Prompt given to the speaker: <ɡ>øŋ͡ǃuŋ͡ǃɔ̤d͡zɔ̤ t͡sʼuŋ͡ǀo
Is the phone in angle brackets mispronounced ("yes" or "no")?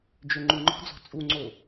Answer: yes